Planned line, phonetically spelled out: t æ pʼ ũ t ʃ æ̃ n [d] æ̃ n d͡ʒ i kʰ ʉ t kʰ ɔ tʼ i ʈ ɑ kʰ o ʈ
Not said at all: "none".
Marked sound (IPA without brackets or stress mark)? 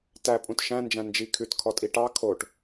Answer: d͡ʒ